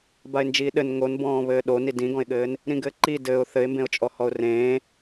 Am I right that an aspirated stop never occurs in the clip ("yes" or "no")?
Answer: yes